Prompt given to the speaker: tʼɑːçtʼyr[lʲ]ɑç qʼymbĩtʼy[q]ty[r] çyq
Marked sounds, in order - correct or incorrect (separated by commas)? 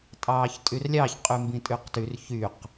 correct, correct, correct